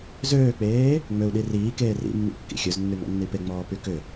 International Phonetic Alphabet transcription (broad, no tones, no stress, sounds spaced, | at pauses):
z øː k͡p eː | ŋ͡m ø u̯ ɗ i r iː k eː r ḭ mː ḭ kː ḭ xʲ ø z nː y ŋ ɔ̰ nː i p e ŋ͡m ɔː p y k ʏ